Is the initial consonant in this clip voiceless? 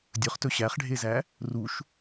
no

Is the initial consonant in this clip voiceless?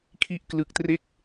yes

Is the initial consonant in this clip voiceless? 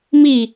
no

